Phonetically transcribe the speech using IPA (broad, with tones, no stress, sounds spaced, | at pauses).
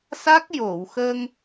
s a˦˥ k̚ j o˨˩˨ w x ə˧ ŋ